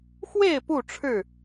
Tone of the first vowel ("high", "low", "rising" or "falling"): falling